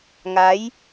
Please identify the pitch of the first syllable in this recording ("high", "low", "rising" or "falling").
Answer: rising